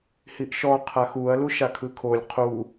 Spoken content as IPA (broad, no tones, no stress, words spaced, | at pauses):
hiʔʃɔ qʰaxuɐ̯ luʃakʰɯkʰolʲ qʰu